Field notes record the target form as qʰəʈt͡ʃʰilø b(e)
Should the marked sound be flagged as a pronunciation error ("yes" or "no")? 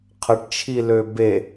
no